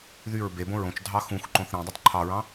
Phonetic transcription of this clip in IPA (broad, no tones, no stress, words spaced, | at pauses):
ðyɹ bebõ ɹõt͡ʃ dʱɑxũxǃõθ ɾẽ dˤytˤǃʰɑɹɑ̃